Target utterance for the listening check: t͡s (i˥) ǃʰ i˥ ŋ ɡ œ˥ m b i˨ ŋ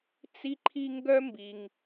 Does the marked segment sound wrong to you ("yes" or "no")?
no